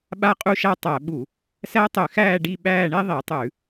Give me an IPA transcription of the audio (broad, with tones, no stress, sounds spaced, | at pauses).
ɓ a˦˨ qʼ u˦˨ ʃ a˦˨ tˤ æ˧˩˧ ɓ u˧˩˧ | s æ˦˥ tˤ ʏ˧˩˧ x æː˦˨ ɖ i˦˨ ɓ æː˦˨ ɳ e˦˥ ðˤ i˧˩˧ tˤ ʉ˧˩˧